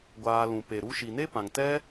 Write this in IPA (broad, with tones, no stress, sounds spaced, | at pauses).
ɡʷ aː˧ l ũ˨ p e˨ ɾ u˧ ʃ i˨ n e˦ p ã˨ ŋ t ɛ˦